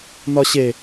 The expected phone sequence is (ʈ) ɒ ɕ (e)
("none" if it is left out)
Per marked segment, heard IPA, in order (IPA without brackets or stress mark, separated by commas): n, e